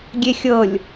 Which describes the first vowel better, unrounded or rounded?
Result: unrounded